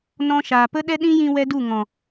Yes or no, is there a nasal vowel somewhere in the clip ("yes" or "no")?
yes